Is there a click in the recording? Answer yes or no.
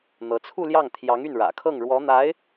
no